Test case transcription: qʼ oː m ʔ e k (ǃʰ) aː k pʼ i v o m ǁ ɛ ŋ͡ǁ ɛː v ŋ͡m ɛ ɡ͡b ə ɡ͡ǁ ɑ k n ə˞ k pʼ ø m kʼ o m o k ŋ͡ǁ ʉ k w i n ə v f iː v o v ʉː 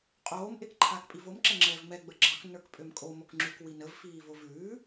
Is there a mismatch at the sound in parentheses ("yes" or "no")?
no